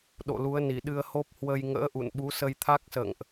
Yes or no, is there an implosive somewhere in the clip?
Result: yes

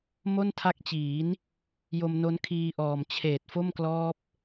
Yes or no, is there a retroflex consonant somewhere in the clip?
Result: no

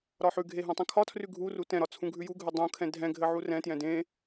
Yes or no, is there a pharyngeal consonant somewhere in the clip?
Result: yes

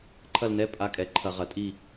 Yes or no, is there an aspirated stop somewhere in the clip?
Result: yes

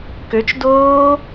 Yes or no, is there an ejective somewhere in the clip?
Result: no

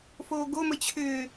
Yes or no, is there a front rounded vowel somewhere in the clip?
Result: yes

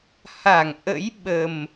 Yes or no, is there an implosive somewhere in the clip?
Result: yes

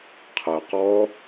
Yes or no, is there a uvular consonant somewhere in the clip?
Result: yes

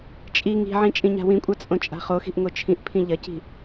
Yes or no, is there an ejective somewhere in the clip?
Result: yes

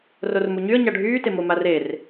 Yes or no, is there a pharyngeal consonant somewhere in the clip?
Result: no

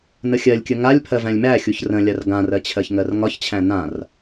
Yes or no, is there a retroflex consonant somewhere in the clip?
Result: no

